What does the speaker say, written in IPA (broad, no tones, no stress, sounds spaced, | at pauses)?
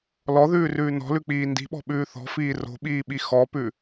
l ɔ ð ʉː r ʉː n ɔ̤ l ʉ k͡p iː n d i̤ ɓ ɔ̤ ɓ ʉː θ ɔ̤ f iː r o̤ ɓ iː ɓ i x ɔ p ʉ